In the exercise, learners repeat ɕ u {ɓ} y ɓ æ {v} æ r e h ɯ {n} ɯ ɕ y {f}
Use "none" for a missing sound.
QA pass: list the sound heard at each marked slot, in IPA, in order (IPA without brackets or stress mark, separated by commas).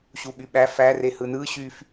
ɓ, f, n, f